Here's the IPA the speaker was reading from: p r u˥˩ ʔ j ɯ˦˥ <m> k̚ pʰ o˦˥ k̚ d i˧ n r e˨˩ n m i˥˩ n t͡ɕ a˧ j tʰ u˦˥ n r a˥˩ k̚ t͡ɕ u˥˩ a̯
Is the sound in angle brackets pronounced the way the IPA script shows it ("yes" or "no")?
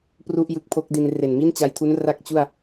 no